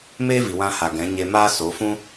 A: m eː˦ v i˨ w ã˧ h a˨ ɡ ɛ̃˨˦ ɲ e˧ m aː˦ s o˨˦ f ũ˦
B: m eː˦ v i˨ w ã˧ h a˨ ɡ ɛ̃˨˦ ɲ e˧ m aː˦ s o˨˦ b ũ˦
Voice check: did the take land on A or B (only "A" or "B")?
A